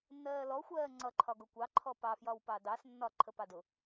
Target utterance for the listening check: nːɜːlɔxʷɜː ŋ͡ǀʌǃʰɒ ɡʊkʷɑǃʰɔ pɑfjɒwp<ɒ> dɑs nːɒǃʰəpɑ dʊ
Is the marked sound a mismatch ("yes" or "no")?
yes